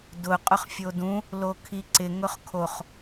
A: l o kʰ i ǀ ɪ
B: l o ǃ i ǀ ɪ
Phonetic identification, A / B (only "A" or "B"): A